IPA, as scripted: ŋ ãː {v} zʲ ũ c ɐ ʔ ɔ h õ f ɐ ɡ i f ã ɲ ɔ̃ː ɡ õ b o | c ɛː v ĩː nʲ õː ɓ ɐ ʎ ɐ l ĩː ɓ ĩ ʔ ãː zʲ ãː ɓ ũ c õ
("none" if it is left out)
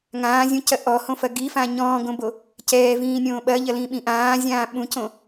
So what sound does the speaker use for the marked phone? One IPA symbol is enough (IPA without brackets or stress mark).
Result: none